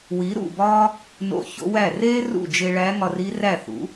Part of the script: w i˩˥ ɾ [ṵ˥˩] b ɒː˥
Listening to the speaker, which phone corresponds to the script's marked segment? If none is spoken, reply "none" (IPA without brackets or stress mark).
ṵ˥˩